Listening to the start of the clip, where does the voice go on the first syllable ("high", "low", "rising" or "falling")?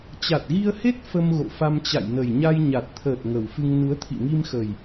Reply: low